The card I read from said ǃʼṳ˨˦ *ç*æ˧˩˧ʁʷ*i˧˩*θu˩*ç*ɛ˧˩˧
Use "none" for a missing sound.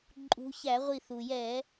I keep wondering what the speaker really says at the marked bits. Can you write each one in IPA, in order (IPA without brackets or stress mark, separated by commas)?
ç, i˧˩, j